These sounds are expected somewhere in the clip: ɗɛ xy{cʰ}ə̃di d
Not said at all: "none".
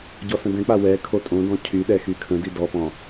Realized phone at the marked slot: kʰ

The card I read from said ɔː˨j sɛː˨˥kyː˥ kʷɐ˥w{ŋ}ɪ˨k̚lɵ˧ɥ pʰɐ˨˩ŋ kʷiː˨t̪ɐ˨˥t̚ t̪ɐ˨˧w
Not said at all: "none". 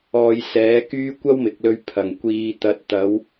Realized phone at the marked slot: m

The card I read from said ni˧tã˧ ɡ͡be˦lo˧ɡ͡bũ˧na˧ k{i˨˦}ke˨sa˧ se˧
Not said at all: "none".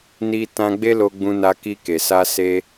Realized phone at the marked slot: i˧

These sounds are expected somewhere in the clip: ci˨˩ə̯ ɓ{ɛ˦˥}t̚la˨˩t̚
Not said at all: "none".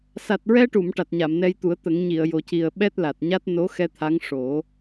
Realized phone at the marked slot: ɛ˦˥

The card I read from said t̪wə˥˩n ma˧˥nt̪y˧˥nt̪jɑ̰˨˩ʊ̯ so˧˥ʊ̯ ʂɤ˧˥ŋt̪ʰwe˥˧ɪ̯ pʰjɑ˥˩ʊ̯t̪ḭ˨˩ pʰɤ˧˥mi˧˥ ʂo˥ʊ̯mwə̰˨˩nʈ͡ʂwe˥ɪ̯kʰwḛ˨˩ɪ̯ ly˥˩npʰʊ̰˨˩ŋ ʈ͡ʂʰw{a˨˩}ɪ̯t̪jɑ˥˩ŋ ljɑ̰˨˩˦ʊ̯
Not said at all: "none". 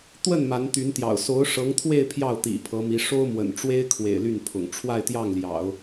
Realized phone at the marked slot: a˥˧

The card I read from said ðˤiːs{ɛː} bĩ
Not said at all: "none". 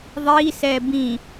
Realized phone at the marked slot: ɛː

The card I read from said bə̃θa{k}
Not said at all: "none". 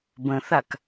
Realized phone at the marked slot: k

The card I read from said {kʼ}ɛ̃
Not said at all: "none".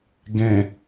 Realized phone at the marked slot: ɡ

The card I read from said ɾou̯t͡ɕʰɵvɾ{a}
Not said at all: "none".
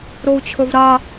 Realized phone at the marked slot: a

